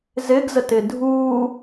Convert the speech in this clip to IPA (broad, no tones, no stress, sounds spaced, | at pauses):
z ɪ ɡ z ə t ɪ dʱ u